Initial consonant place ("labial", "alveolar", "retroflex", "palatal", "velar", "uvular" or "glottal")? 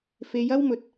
labial